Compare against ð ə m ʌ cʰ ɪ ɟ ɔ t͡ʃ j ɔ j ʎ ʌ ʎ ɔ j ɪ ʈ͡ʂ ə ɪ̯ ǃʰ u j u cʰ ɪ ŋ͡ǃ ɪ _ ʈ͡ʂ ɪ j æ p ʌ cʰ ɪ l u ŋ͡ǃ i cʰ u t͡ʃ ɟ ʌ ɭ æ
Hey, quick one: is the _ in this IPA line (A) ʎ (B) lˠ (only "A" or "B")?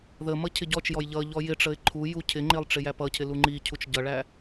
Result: B